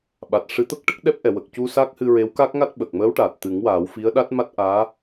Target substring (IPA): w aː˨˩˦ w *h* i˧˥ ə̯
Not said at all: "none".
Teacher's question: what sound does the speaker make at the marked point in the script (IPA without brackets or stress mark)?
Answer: f